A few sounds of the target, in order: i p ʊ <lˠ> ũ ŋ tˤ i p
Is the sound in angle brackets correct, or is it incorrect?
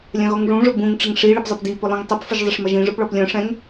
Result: correct